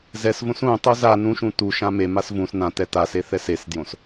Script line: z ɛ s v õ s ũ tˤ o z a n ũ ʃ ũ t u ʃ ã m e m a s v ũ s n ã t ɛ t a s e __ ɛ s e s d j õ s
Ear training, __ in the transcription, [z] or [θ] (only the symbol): θ